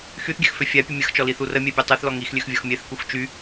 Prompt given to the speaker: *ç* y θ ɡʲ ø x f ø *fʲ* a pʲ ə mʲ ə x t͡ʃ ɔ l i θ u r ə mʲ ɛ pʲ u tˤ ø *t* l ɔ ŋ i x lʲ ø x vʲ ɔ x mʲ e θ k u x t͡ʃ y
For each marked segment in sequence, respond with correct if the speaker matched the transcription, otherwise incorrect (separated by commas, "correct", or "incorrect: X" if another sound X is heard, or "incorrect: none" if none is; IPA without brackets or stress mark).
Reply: incorrect: x, correct, incorrect: θ